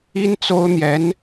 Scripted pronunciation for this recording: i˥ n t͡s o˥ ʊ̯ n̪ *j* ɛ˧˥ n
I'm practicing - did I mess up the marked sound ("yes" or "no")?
no